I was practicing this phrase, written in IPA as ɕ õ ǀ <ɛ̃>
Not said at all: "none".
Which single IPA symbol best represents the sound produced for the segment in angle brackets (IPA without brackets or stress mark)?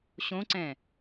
ɛ̃